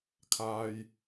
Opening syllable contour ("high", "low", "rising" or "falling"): low